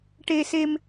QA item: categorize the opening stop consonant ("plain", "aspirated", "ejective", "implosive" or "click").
plain